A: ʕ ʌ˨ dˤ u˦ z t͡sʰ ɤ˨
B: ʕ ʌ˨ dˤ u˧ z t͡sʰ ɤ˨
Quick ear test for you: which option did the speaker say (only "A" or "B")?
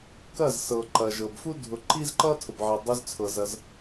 B